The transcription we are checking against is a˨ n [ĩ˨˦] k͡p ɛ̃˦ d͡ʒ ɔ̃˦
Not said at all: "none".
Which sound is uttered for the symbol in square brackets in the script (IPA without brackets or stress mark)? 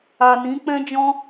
ĩ˨˦